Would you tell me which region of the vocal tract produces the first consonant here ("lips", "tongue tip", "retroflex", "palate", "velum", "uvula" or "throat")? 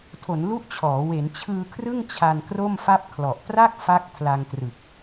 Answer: tongue tip